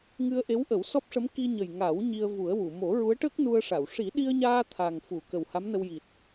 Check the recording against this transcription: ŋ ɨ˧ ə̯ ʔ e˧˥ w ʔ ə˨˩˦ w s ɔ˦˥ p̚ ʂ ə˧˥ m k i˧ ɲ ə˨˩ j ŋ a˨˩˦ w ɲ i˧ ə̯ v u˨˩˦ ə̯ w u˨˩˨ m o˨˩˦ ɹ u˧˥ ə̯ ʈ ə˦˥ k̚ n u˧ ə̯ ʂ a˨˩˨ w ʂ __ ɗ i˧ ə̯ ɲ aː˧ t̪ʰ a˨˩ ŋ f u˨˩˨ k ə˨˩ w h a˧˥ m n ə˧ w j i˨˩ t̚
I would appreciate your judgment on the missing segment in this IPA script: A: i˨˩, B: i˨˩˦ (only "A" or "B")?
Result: B